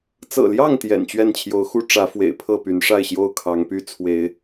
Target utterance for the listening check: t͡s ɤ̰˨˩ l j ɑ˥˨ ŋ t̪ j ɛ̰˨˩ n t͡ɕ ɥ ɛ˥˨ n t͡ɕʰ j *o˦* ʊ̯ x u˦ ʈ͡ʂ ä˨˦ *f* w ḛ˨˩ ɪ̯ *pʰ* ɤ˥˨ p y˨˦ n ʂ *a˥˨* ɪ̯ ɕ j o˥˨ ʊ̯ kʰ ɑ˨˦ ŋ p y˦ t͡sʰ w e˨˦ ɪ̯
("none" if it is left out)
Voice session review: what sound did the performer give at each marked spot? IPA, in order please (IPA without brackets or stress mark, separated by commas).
o˨˦, f, pʰ, a˥˨